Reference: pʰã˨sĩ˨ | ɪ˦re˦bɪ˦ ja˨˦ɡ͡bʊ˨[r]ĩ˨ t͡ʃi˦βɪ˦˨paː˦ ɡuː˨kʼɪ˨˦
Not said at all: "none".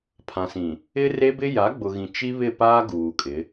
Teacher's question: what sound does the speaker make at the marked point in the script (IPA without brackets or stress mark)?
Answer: ɣ